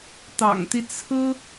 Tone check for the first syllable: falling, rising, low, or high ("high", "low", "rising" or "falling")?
low